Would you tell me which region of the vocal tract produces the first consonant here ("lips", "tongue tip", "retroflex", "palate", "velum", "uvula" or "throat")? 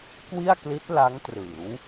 velum